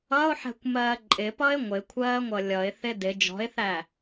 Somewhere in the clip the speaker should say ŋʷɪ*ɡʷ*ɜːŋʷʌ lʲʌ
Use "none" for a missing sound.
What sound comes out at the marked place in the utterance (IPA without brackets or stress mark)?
kʷʰ